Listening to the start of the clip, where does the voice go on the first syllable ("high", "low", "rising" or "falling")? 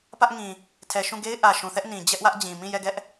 high